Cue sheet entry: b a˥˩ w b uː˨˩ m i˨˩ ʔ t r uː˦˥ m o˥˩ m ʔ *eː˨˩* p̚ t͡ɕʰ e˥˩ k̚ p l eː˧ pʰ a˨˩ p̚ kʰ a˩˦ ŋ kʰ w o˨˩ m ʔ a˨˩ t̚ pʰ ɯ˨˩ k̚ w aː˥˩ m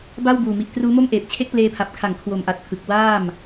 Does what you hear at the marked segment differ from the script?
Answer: no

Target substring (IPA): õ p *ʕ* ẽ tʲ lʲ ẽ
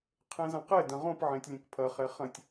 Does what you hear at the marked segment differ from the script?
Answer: no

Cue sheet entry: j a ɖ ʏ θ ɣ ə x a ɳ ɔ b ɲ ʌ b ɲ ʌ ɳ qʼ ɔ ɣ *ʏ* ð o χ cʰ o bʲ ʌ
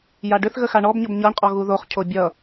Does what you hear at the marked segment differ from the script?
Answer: yes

